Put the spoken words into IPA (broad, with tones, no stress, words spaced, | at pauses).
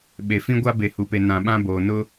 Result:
ɓe˨fĩ˦ɡʷa˦ be˨hu˨pe˨ nã˨ɓã˦ boː˨ nʊ˦